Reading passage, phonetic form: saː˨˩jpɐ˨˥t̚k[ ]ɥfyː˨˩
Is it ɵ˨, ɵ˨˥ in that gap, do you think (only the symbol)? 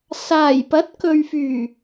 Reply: ɵ˨